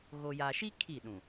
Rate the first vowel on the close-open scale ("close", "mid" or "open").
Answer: mid